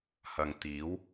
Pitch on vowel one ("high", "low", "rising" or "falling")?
low